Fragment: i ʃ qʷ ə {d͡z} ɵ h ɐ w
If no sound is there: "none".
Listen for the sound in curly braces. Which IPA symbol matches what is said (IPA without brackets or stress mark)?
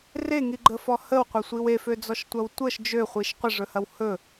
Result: ʐ